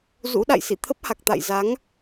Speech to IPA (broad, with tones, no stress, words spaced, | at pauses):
zṵ˧˥ɗa̰˧˨jsḭ˧˨ t̪ʰə˦˥p̚ha˨˩k̚t̪a̰˧˨j za˨˦ŋ